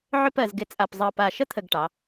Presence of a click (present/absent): absent